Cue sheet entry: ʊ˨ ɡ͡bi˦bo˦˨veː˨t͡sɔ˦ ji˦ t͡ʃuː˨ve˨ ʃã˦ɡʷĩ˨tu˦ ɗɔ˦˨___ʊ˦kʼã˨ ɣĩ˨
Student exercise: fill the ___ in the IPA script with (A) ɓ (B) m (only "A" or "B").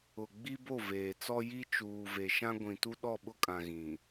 A